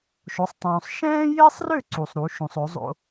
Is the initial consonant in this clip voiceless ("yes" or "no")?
yes